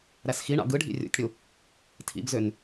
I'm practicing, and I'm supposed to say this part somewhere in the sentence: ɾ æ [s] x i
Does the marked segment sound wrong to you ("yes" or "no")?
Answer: no